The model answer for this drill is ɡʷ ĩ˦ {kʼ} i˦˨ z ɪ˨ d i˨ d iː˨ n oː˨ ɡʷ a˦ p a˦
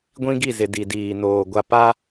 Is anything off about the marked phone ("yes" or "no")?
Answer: yes